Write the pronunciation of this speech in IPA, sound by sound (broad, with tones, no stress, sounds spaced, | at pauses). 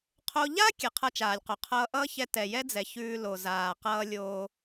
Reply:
qʰ o˧ ʎ a˥ kʲ ɛ˩ qʰ ʌ˧ t͡ʃ aː˩ lʲ q o˩ qʰ ʌː˧ ʔ ʌː˥ ç ɛ˧ t ɛ˩ j ɛ˥ d͡z ɛ˩ ç ʉː˧ l o˩ z aː˩ q ʌː˧ lʲ oː˧